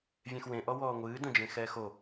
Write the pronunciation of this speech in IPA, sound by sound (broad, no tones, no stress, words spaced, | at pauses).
vʲẽxwẽʔɔ wɔːŋʷɨː dõd͡ʒẽxɛːxo